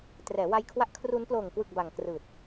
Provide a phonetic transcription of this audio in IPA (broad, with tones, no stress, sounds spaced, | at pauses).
t r ɛː˩˦ w a˧ j kʰ w a˦˥ ʔ kʰ r u˦˥ n p l oː˨˩ ŋ k w ɯ˨˩ k̚ b a˨˩ ŋ k r ɯː˨˩ t̚